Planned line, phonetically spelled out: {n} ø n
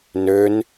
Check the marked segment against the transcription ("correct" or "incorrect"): correct